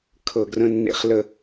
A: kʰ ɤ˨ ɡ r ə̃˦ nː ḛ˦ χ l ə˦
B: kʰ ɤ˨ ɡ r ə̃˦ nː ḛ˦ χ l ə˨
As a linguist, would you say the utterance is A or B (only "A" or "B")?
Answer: A